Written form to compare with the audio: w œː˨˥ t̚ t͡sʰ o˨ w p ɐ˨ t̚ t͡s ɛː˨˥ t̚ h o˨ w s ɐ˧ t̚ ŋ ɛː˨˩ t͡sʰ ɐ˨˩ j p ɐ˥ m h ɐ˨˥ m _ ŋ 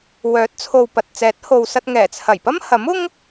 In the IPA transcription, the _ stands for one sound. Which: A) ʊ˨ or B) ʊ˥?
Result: B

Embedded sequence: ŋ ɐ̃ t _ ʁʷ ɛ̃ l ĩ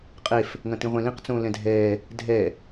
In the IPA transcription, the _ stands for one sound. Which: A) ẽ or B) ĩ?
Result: B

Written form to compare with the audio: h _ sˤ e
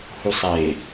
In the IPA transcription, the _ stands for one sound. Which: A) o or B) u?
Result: B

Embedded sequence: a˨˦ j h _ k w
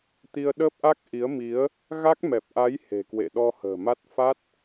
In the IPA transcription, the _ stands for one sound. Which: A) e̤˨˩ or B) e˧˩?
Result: A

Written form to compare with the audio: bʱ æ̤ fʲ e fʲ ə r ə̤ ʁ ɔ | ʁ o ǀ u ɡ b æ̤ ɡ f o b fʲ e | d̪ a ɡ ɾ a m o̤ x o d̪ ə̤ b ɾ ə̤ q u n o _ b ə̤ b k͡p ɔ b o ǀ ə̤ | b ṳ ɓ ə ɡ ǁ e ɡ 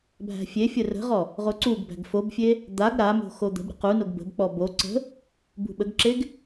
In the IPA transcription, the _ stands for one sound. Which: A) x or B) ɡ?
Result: B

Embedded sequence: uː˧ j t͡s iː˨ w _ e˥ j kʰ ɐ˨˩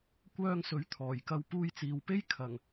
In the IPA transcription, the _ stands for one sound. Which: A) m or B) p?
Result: B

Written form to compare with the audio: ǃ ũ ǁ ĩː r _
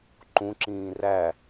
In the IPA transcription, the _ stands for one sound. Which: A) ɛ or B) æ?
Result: B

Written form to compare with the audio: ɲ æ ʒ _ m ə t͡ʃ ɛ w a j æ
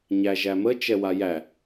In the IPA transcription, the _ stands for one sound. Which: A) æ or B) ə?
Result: A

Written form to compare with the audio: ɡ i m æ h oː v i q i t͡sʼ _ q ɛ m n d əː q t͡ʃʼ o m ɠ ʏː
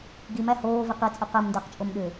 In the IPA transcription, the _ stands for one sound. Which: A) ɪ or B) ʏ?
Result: B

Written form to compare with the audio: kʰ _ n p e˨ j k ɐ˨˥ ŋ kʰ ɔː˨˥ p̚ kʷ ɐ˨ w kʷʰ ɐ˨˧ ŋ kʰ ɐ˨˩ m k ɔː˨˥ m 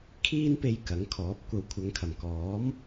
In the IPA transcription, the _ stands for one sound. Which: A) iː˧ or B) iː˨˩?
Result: A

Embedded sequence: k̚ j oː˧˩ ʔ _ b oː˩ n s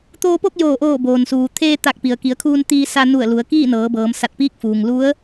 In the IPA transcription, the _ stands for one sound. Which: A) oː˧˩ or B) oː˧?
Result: A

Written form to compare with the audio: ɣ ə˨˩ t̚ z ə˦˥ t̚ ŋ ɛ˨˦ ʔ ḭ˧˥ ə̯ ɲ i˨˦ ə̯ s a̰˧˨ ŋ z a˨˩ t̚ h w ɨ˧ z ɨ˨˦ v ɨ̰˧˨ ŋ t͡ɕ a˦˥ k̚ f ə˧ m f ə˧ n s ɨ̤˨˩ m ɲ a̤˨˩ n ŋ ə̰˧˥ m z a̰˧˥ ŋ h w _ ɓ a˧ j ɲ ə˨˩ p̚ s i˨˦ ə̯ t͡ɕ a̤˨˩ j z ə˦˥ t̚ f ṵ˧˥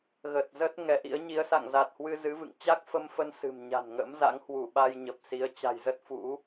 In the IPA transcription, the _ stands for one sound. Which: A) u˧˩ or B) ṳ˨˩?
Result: A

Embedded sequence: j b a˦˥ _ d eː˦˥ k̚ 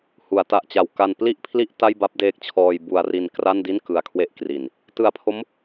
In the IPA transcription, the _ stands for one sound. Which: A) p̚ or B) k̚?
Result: A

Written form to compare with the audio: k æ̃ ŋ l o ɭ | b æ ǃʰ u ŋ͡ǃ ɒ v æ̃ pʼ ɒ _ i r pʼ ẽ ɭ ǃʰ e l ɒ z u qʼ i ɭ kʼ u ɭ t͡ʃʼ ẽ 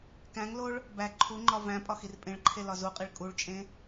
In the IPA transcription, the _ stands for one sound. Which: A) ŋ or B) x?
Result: B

